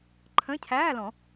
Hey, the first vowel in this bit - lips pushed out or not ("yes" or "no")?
no